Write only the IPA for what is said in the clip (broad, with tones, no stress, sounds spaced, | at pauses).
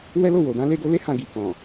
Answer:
w ɛ˦ l o˦˨ w o˨ d ã˨˦ l e˧ ɡ o˧ l e˦ h ã˧ ɡ i˨ k ɔ̃˨